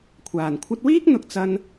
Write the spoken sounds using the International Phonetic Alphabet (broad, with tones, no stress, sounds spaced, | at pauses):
kʷʰ aː˨˩ n kʷʰ ɐ˧ t̚ w iː˥ k̚ n̪ ʊ˨ k̚ t͡s ɐ˧ n